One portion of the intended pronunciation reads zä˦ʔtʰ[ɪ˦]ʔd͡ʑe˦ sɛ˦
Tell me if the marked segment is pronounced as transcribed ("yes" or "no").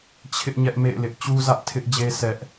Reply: yes